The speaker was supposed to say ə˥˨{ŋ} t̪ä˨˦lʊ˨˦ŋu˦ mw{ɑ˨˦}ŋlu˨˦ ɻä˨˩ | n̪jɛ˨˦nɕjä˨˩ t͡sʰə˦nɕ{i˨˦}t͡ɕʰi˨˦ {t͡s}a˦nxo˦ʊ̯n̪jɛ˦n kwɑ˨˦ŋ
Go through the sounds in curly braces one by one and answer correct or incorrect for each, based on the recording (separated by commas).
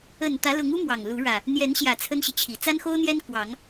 incorrect, incorrect, incorrect, correct